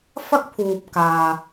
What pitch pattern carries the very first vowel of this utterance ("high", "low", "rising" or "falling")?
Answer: high